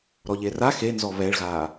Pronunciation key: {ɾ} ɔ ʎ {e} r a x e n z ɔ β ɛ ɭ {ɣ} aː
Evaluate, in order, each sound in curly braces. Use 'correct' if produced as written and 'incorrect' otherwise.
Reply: correct, correct, correct

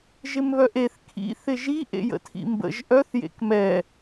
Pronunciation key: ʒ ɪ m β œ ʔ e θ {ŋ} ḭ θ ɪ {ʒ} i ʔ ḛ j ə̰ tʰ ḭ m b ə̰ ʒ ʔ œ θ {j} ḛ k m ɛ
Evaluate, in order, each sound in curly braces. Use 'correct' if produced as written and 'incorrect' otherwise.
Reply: incorrect, correct, correct

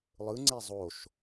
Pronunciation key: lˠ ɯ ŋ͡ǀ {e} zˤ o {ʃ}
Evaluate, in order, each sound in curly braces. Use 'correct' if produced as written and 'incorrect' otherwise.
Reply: correct, correct

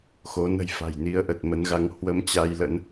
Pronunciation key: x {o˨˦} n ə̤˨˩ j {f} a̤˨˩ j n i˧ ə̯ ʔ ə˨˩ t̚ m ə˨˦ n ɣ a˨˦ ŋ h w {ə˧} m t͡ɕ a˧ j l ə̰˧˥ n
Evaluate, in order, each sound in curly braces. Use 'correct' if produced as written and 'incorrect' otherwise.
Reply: correct, correct, correct

